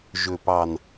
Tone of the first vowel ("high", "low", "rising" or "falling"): low